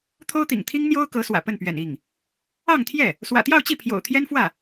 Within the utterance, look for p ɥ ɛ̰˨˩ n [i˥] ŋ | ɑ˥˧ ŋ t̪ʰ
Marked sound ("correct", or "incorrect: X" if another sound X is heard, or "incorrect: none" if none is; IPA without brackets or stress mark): incorrect: i˥˩